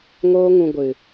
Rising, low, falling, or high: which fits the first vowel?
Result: high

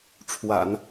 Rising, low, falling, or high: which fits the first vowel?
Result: low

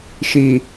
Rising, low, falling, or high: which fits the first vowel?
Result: low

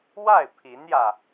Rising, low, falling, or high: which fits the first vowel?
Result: falling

